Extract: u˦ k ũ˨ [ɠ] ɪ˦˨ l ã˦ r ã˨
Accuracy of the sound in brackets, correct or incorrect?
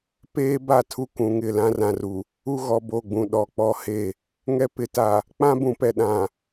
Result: incorrect